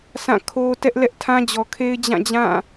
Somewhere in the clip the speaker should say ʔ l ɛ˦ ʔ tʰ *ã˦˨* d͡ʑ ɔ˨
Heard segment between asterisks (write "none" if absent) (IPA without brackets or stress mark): ã˦